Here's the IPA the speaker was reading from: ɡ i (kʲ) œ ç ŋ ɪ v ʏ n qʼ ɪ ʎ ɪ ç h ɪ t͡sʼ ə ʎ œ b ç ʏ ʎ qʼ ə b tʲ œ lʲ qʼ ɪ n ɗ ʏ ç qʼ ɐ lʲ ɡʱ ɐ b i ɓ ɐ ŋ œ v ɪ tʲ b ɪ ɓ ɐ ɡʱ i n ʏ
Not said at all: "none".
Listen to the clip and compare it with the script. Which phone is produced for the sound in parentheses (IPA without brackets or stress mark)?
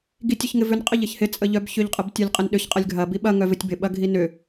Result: tʲ